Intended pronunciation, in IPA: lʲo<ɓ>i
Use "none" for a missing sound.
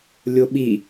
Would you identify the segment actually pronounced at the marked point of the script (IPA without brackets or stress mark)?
ɓ